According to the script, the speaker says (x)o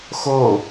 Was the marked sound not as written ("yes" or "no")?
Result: no